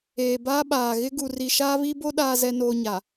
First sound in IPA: eː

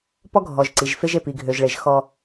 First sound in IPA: p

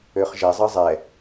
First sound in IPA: ø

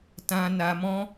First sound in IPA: t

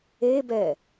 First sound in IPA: e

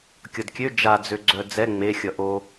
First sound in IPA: kʲ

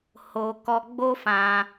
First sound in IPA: h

